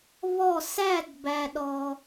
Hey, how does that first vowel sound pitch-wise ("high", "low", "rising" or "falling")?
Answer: falling